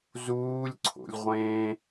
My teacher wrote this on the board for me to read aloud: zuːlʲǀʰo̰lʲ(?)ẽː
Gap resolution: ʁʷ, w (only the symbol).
ʁʷ